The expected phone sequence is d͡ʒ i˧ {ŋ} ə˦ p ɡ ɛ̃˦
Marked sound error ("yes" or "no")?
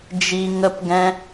no